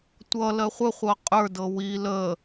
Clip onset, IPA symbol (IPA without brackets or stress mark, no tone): tʷ